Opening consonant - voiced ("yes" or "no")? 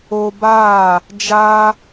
yes